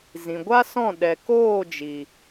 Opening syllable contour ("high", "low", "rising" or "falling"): low